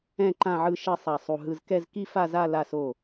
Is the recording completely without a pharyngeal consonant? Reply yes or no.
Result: no